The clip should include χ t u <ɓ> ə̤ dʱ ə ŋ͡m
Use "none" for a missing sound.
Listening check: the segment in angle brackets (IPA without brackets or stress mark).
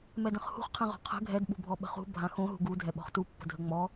pː